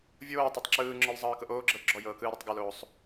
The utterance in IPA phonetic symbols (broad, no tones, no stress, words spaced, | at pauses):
vʲoː tˤatˤǁɯːŋ͡ǁɔl zˤɤːkɤʔoːɡ͡ǁɤl ɡ͡ǁɔjɤːkɯː ɾɔtˤɡɔloːsˤ